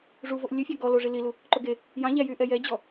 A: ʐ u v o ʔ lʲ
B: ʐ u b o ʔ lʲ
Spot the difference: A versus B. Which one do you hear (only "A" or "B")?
A